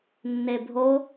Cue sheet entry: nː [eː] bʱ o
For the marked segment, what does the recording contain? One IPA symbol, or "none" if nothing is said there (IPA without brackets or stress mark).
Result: e